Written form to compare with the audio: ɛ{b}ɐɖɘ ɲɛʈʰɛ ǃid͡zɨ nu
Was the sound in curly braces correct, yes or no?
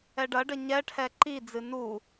no